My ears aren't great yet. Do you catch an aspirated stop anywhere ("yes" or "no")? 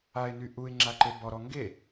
no